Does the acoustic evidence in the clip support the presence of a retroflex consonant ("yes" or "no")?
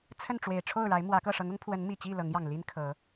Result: yes